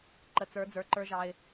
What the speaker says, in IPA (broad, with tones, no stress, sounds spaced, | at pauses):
ǃ ə˨ t͡s ə˞˨˦ d͡z ə˞˨ ǃ ə˞˦ ʒ ɑ˦ ɪ̯